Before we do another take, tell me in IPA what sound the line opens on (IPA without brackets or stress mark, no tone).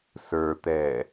s